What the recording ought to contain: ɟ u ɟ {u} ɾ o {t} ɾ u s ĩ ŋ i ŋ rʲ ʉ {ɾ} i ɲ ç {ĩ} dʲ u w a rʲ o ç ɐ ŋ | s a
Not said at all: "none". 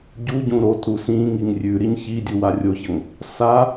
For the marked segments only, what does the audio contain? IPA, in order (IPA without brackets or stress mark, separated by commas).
ũ, t, ɾ, i